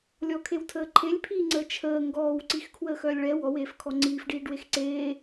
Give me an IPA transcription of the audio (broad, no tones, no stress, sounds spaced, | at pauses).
lʲ ɔ kʰ e w tʰ əː ǃʰ e lʲ pʰ iː ŋ͡ǀ əː t͡ʃʰ əː ŋ ɡ ɔː w ǀ i x kʰ w əː x œː lʲ ɭ ɛ w ɔ w eː f kʰ ɔ ŋ͡ǀ iː f ɖ iː ɖ w e x ǀ eː